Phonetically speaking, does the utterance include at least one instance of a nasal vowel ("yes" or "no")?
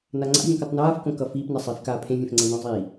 yes